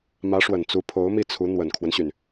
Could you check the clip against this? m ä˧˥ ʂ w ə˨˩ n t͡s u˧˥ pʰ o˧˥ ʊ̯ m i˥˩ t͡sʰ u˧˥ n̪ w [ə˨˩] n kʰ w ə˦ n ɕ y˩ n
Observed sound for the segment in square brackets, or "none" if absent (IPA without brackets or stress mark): ə˨˩